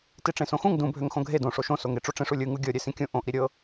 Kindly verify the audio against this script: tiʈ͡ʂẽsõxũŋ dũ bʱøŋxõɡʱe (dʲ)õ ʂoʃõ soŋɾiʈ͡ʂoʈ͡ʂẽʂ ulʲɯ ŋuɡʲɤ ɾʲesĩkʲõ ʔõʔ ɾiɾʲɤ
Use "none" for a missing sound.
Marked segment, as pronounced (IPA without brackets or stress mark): d